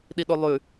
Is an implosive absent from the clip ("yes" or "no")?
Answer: no